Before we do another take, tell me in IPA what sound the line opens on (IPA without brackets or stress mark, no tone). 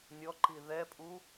nʲ